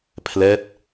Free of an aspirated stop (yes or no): no